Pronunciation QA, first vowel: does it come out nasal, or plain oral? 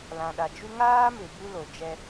nasal